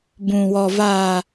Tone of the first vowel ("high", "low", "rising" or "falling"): low